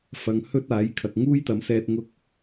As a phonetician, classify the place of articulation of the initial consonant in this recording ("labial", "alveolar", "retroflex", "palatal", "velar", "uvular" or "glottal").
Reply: labial